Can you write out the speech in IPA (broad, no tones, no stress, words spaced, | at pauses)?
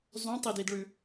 zˤũtˤididɭʉ